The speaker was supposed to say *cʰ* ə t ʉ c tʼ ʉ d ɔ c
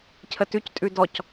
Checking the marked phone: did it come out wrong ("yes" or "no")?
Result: no